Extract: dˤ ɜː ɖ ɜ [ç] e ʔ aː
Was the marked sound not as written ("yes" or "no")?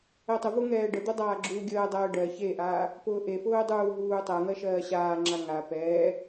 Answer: no